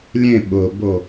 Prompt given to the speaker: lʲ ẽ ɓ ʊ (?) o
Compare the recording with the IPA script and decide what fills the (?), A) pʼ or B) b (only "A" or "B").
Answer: B